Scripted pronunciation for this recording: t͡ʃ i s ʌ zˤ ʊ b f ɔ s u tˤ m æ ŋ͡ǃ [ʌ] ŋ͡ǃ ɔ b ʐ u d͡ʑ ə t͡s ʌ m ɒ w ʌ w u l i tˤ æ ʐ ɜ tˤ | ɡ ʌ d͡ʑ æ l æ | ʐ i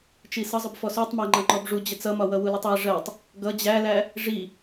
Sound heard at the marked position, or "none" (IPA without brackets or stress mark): ʌ